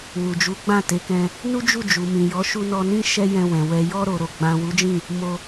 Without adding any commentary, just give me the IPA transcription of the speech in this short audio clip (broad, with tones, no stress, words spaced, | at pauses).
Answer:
wu˨d͡ʒu˨˦ɡ͡bã˦˨ te˨˦kɛ̃˧ | nu˦d͡ʒu˦˨ d͡ʒu˨mĩ˨jɔ˨˦ʃu˧ nɔ˧nĩ˦ ʃɛ˦jɛ̃˧wɛ̃˨ wɛ˨ jɔ˧ɾo˨ ɾo˨ɡ͡bã˨ wu˨˦d͡ʒĩ˦˨ | mo˧